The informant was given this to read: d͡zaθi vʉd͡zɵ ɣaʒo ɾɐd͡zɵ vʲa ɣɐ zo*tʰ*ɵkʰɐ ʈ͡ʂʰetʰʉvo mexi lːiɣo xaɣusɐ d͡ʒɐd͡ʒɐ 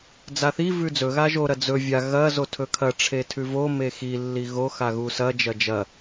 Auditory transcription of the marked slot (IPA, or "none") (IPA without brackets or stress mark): tʰ